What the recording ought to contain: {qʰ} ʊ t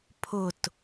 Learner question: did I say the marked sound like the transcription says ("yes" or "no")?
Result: no